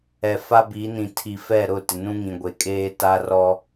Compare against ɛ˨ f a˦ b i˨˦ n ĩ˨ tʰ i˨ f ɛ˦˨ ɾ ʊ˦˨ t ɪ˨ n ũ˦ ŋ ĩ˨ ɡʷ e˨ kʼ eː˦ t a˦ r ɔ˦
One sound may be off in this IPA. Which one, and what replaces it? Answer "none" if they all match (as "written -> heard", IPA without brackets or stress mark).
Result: none